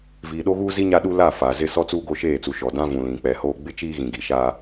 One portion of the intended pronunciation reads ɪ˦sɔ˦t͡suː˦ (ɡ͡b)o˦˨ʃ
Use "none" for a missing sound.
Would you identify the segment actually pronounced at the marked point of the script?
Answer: ɡ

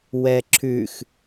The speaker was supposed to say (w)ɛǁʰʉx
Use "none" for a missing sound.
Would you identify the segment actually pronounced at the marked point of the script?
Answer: w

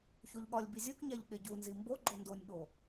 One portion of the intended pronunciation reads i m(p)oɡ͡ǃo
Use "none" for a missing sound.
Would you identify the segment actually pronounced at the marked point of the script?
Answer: b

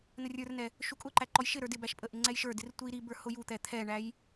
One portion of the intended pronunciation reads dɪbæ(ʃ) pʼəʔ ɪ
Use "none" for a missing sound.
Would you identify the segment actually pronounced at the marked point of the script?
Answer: ʃ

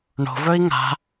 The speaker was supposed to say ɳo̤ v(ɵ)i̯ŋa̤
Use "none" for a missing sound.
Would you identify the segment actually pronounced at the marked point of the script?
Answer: ɵ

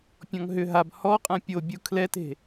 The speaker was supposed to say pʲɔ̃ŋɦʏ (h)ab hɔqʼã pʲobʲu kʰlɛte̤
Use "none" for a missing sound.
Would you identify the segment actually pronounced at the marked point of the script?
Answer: ɦ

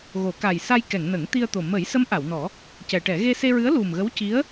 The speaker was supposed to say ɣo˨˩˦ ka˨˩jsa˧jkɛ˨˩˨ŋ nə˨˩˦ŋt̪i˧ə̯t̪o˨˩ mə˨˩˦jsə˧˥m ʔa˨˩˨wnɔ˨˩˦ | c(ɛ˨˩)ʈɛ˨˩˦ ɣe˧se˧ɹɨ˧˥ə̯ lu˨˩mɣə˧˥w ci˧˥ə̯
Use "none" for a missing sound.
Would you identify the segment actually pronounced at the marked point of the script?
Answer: ɛ˨˩˨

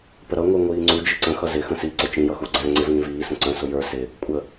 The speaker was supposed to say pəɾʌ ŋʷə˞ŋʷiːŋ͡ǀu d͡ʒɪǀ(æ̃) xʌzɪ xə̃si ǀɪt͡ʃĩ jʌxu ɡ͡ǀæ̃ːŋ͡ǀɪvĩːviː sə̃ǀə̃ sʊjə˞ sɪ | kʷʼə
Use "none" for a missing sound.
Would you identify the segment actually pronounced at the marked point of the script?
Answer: ə̃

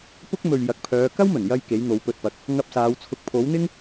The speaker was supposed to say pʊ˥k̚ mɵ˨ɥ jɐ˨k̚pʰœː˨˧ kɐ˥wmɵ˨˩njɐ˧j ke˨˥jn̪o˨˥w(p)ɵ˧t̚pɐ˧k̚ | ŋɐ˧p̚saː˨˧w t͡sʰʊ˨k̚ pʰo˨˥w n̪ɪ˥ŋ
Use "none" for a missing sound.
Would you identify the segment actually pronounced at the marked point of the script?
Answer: p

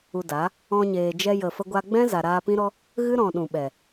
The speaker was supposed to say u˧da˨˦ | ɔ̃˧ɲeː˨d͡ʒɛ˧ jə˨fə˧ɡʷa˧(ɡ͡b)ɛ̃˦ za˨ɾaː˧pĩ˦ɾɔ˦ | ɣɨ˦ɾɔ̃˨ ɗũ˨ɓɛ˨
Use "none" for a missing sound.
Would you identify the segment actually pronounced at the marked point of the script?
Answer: ɡ͡b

